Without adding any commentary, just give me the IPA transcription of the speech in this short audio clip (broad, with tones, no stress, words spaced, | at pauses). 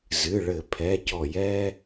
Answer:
zɨ˩˧˩ɭɘ˧˩˧ pʰɛ˩˧˩cɔ˧˩˧j ɛ˧